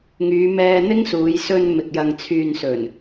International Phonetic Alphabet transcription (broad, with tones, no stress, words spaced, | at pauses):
ŋyː˨˧mɛː˧ n̪ɪ˥ŋsuː˨˧j sɵ˧nmɪ˨k̚ jɐ˨ŋt͡sʰyː˨nsɵ˨˩n